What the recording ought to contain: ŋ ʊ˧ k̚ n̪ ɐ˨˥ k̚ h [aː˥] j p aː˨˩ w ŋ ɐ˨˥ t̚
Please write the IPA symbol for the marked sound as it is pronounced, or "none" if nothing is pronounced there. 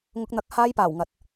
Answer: aː˥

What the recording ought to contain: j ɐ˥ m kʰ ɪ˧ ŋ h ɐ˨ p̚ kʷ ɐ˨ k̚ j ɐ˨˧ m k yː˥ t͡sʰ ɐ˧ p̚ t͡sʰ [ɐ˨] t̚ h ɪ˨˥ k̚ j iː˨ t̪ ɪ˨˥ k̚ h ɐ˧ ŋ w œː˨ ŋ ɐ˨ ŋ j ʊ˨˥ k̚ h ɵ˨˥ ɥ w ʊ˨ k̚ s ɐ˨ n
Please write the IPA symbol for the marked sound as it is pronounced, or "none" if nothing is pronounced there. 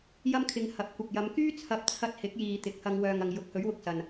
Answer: ɐ˧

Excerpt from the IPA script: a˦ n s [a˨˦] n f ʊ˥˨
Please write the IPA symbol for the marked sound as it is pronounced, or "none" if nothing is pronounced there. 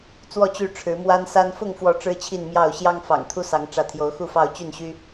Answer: a˦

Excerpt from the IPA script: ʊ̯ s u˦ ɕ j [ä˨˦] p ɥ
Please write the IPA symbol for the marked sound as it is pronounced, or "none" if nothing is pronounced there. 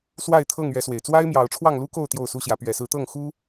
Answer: ä˨˦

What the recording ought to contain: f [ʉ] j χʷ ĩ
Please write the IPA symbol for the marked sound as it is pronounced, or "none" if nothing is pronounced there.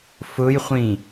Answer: ʊ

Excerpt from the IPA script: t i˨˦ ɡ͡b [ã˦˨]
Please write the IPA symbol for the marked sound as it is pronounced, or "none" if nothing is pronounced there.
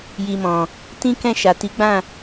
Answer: ã˦˨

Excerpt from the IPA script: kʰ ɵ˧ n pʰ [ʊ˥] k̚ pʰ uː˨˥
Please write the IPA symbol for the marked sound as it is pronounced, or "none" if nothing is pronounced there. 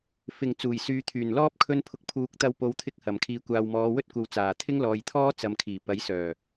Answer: ʊ˨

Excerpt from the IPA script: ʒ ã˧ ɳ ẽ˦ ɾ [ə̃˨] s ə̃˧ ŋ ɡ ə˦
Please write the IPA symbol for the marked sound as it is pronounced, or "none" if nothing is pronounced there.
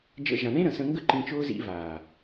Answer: ə̃˨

